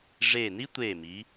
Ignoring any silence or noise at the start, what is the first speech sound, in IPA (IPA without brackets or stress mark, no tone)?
ʐ